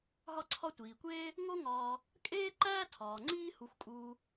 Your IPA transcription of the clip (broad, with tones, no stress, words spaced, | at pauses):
ɦɒ˦ǀʰɒ˦tʷiː˩kʷeː˥ | ŋo˦ŋɒː˨ | kʼeː˥ ǃæː˥tʰɒː˩ŋ͡ǀiː˦ hu˨xʷkʼuː˨